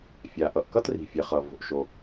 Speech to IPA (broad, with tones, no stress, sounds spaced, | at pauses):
fʲ a˩ ʔ ʌ˩ ʔ k ʌ˥ t r i̤˩ fʲ ɛ˩ χ ʌ˩ v o̤˩ ʔ ʃ o˩